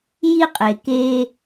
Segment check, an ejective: present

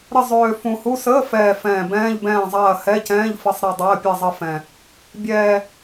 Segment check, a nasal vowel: present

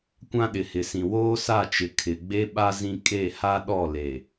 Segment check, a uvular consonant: absent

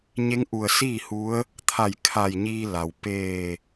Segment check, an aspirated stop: present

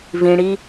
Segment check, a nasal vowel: present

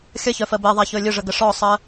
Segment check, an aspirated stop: absent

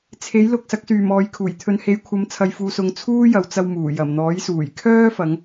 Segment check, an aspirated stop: present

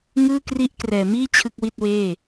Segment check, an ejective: absent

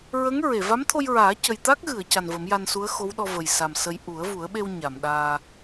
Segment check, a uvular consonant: absent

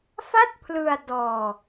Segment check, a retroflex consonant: absent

